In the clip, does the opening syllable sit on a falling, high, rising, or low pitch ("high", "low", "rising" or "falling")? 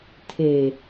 low